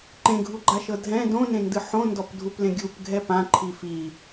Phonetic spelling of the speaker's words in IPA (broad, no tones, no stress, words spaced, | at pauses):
ǃẽɡʱuɡ͡ǃaʃɤ dʱɛ̃ dõnẽndɯ ħõndɔpdʱuplẽ ɡʲupɡʱɛ pãǃʰi fi